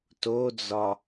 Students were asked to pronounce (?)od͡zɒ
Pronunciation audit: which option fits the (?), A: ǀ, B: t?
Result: B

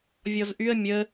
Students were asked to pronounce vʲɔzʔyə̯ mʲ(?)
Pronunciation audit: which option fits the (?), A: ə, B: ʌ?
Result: A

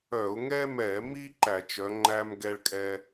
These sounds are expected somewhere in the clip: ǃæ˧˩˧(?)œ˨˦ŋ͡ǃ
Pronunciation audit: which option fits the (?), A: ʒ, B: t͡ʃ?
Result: B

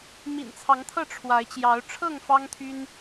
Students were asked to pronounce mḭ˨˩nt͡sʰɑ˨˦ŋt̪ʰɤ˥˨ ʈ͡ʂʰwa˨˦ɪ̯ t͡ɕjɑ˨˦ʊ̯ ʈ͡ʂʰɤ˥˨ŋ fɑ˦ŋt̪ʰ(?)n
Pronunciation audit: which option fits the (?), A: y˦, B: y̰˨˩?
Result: A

